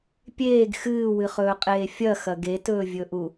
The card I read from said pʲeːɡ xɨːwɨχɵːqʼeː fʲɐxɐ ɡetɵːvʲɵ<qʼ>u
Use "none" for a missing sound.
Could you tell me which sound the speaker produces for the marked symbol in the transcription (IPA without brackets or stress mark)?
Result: ʔ